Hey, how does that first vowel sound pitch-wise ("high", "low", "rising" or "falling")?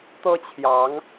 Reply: high